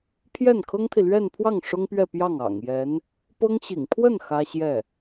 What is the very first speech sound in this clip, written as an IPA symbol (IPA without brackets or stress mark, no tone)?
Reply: pʰ